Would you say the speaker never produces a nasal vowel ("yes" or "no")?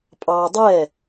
yes